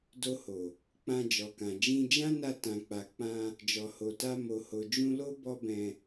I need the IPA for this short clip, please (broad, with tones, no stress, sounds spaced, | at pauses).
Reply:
d o˧ h o˨ | k͡p ã˧ d͡ʒ ɔ˨ k ã˨ d͡ʒ ĩ˧ d͡ʒ ã˦ n a˧ t ã˨ k͡p a˨ k͡p ã˧ | d͡ʒ ɔ˨ h o˨ t a˧ m o˨ h o˨ d͡ʒ ũ˧ l o˦ b ɔ˦ b ɛ̃˧